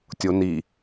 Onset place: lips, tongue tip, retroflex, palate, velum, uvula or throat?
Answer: tongue tip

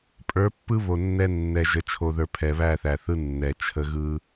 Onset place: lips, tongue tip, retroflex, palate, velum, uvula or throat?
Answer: lips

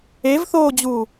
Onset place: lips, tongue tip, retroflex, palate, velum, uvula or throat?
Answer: lips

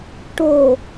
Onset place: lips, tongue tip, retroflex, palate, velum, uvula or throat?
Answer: retroflex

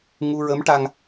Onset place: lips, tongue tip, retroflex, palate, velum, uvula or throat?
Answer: velum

